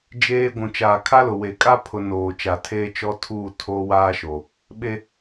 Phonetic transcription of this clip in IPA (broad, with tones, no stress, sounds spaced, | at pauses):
d͡ʒ eː˦ ɡʷ ũ˨ t͡ʃ aː˨ kʰ a˦ l ʊ˨ w e˨ kʼ a˦ pʰ ʊ˨ n oː˨ t͡ʃ a˨ tʰ eː˦ t͡ʃ ɔ˦ tʰ uː˦˨ tʰ oː˦ w aː˦ ʃ o˨ | ɓ e˦